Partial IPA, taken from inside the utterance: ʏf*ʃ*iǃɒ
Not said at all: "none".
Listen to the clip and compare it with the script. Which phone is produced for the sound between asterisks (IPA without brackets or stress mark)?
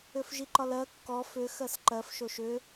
ʒ